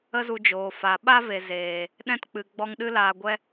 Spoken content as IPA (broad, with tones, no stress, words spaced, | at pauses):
ə˦zu˧d͡ʒoː˨ fa˨ ɓa˦ve˨ zeː˨ | ɗɛ̃˧tk͡pɨ˨ ɡ͡bɔ˧ŋɗɨ˦laː˧ ɡʷɛ˧